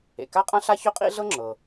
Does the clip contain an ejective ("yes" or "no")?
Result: yes